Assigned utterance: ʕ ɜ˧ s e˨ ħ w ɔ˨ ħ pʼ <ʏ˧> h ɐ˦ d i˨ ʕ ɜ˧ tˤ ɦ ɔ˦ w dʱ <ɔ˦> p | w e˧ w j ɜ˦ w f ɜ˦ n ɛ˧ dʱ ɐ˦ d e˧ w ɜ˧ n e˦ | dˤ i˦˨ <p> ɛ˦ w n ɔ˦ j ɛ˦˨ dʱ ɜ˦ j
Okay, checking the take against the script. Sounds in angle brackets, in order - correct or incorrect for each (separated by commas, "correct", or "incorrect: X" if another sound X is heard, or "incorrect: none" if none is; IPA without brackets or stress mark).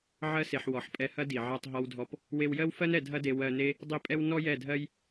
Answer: incorrect: ɛ˧, correct, incorrect: pʼ